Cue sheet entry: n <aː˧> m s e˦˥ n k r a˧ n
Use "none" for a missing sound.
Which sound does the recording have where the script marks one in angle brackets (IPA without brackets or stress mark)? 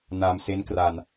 aː˧